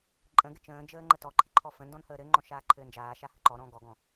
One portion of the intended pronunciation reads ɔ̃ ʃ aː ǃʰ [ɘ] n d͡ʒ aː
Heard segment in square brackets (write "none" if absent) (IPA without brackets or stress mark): ɘː